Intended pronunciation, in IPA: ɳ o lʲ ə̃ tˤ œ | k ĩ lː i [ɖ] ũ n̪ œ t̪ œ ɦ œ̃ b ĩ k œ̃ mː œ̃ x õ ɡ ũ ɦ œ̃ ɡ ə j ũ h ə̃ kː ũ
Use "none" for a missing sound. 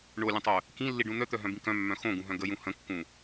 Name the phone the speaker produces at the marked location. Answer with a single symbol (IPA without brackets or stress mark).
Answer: ɖ